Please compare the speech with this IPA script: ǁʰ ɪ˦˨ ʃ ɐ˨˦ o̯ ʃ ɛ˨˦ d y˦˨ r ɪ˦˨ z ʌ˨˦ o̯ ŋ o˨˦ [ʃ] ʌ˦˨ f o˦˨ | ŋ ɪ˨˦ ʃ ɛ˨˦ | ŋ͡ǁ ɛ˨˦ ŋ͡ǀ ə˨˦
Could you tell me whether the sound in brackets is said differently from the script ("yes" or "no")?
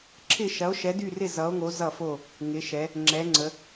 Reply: yes